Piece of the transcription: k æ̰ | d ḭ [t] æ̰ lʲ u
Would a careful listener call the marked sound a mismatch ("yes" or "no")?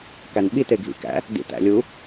no